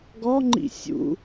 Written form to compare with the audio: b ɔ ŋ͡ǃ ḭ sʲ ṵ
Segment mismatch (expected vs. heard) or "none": b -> ɡ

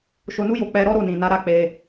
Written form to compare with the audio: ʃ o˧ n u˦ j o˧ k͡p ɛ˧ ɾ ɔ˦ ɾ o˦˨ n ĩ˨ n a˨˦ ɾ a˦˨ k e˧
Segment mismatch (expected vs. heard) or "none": k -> k͡p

